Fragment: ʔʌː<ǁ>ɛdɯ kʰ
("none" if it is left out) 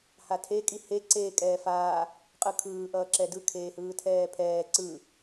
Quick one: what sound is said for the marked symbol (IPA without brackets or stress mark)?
ǁ